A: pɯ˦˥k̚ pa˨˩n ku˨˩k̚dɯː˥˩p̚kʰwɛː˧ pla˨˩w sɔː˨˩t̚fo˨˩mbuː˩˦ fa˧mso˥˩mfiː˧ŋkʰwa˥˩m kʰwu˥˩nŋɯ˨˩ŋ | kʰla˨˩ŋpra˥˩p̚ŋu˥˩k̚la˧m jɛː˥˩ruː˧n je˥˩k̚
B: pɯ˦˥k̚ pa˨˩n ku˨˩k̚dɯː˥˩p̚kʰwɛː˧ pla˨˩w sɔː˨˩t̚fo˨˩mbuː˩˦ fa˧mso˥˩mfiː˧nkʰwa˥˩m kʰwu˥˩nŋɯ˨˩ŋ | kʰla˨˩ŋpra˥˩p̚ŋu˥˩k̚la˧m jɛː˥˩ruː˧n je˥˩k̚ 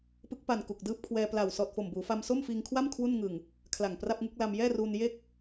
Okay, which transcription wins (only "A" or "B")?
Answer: A